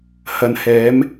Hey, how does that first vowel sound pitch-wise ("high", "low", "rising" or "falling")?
low